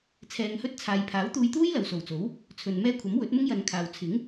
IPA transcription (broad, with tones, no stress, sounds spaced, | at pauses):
t͡sʰ ɛː˨˧ ŋ h ɵ˥ t̚ t͡sʰ aː˨˧ j pʰ aː˨˥ w t̪ uː˧ j t̪ uː˥ j l ɐ˨ w s o˨˩ w t͡s o˨˥ w | t͡sʰ ɵ˨ n m ɛː˥ kʷʰ ɐ˨˥ m w ɵ˨˥ t̚ m ʊ˥ ŋ j ɐ˨˧ n kʰ aː˨ w t͡sʰ ɪ˨˥ ŋ